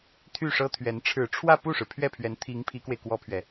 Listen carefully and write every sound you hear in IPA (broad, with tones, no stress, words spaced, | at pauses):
t̪ʰy˥˩ʂɤ˥t̪ʰɥɛ˧˥n ʈ͡ʂʰɻ̩˨˩ʈ͡ʂʰwä˥˧ pu˥˩ʂɻ̩˩pʰɥɛ˥˩pʰɥɛ˧˥n t̪ʰi˧˥ŋ pʰi˧˥kwe˧ɪ̯ kwɔ˥pʰɥɛ˨